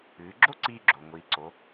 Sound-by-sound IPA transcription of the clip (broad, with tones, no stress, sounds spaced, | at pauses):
ɨː˩˧ ɡ͡ǁ o˥ ǀ iː˧ ɡ͡ǁ o˩ ŋʷ iː˩˧ ǀ o˩˧